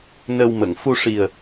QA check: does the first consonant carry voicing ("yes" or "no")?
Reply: yes